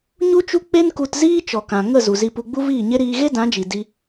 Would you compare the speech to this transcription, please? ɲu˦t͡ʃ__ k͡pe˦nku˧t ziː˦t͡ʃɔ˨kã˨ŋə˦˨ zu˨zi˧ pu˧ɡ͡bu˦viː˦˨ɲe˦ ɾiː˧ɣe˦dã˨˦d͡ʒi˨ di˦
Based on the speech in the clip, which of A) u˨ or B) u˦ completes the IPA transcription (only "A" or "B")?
B